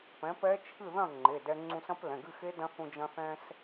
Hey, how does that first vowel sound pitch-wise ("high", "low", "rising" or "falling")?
rising